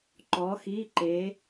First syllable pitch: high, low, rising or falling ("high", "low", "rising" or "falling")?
rising